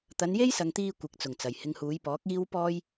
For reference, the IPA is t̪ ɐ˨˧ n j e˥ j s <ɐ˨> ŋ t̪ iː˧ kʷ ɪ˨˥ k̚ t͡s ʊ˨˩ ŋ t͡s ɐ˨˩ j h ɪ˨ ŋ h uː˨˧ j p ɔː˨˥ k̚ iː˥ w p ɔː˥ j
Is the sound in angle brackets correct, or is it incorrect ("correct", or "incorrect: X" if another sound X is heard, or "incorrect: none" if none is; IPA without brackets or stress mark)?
correct